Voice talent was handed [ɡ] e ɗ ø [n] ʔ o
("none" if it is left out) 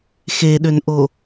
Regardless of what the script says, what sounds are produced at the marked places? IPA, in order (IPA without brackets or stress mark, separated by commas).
x, n